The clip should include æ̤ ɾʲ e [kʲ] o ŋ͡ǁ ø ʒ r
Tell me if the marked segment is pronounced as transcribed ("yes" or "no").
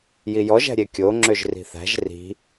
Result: yes